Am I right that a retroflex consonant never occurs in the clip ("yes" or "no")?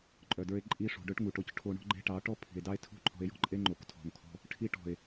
no